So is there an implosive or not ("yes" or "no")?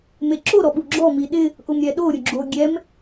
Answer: yes